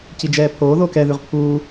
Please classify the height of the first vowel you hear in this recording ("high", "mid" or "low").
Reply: high